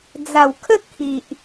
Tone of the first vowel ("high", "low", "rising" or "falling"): low